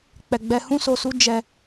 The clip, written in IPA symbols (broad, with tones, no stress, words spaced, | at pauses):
k͡pɛ˧ɡ͡bɛ˦ hũ˦so˧ su˦ d͡ʒɛ˧